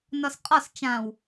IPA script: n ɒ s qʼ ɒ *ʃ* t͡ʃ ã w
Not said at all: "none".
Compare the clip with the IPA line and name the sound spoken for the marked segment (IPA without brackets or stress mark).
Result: s